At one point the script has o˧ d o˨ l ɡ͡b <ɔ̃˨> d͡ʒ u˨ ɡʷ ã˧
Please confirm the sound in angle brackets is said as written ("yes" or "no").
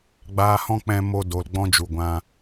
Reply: no